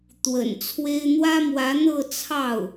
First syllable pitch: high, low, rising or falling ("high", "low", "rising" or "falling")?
low